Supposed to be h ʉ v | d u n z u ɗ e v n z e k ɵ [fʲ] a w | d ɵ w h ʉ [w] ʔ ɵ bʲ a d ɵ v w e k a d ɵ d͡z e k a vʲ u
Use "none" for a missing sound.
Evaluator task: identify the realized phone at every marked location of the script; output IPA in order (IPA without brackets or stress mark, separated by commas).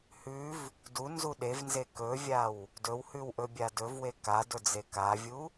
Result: vʲ, w